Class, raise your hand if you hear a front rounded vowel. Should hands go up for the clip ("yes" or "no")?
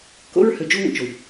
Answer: yes